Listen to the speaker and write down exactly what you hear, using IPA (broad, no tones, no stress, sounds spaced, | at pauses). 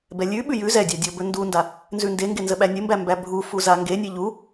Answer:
b ɛ lʲ ʉ ɓ ʉ j ʉ z ɛ dʲ a dʲ ɔ b ɵ n d u n d a | n z ʉ n d e ŋ ɡ e n z ə ɓ æ nʲ ə m b æ m b æ bʱ u f u z a ŋ ɡ e nʲ e ʎ u